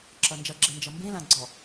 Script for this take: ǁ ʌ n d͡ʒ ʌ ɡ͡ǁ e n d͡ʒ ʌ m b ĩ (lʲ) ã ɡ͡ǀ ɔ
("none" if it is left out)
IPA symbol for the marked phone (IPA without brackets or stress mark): l